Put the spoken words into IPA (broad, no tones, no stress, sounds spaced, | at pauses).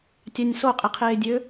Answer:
tʲ ɑ nʲ s o qʼ i qʰ eː dʲ ø